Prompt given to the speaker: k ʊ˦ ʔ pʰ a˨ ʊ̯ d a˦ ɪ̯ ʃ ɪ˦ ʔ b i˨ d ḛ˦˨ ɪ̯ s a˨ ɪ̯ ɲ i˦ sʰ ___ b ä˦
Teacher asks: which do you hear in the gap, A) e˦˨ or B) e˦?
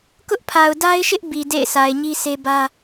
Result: B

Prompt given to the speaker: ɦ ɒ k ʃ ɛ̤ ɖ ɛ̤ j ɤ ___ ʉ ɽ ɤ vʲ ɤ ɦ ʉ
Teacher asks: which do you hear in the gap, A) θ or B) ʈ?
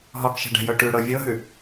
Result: B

